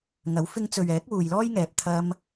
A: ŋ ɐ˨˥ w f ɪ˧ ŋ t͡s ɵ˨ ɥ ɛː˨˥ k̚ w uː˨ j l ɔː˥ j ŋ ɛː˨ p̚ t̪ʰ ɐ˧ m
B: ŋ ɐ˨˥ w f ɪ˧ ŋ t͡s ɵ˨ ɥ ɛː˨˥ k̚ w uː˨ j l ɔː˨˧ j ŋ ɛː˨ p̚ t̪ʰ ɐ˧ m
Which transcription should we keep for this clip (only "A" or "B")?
A